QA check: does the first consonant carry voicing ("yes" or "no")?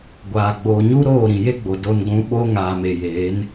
yes